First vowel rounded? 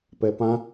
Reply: no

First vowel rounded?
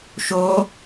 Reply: yes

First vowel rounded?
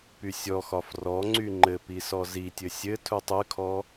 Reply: yes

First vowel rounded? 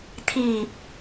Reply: no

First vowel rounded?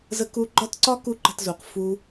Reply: no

